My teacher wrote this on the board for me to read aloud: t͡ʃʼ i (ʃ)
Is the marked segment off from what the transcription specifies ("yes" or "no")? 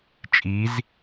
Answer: yes